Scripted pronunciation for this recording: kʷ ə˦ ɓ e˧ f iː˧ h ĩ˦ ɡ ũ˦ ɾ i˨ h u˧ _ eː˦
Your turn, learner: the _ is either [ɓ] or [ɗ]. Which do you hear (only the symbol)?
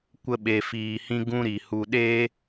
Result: ɗ